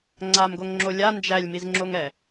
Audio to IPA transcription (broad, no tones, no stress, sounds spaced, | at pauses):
ŋ͡ǀ a m ɡ o ŋ ŋ͡ǁ o lʲ a n d͡ʒ æ lʲ m i z ŋ͡ǁ o ŋ ɛ